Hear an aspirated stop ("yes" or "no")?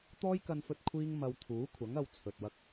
yes